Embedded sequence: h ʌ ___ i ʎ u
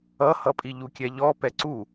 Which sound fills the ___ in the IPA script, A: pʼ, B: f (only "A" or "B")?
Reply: A